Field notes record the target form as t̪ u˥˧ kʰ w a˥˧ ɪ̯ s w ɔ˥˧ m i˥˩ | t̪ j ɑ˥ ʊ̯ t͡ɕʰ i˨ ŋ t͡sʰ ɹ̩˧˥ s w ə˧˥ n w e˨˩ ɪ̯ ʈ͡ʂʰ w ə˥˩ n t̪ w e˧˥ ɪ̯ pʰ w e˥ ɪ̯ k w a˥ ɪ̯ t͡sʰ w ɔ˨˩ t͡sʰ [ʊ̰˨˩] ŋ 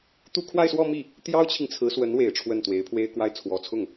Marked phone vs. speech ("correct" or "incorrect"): incorrect